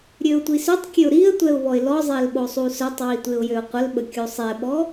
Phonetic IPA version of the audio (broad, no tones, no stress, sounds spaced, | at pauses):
ɾʲ ø ʊ̯ tʷ i s ø tˤ kʲ ø ʊ̯ ɾ i ə̯ tʷ ɛ ʊ̯ β ɔ ɪ̯ l ɔ zˤ e l ɓ o sˤ u s œ tˤ w i tʷ e ʊ̯ j ø ʊ̯ qʷ ə l ɓ ə kʲ u sˤ ɛ ɓ ɔ